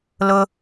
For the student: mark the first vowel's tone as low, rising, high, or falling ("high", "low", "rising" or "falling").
high